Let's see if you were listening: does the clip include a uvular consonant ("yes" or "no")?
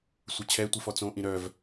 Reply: no